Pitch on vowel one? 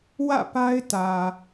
falling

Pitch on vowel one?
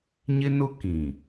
high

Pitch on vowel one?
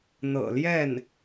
low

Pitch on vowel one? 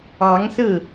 rising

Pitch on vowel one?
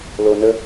low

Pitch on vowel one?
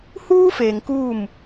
high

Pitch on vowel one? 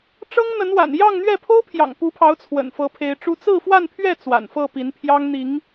high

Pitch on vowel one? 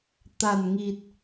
low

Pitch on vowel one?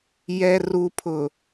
low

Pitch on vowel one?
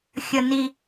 low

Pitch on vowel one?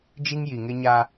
high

